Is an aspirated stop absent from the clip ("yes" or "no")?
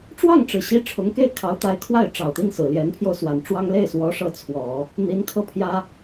no